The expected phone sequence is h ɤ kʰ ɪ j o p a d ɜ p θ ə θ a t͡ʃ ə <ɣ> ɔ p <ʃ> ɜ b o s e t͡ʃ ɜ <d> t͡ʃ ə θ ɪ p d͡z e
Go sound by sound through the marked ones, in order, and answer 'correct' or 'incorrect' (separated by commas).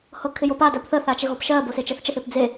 correct, correct, incorrect